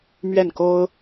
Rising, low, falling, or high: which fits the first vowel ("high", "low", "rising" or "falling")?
falling